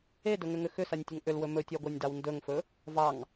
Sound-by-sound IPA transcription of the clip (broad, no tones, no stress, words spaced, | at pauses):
edɵŋʏŋʏ xʏsanʲtʲɵŋ ʔʏlwɵ mɵtʲɑɡʷanʲdɑw ndɵŋfɵ | vɑŋ